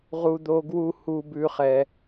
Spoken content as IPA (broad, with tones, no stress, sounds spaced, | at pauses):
ʁ u˥ d̪ o˥ ɡ w u˥ h u˥ b ʉ˥ χ ɛ˥